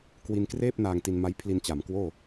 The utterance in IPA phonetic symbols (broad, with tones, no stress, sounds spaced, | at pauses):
k w i˧ n k r eː˥˩ p̚ n aː˧ ŋ t i˧ n m a˦˥ j pʰ l i˧ n t͡ɕ a˩˦ m k w oː˥˩